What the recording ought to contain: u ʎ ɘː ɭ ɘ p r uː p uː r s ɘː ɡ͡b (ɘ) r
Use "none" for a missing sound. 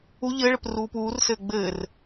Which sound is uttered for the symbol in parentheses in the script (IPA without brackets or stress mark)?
ɘː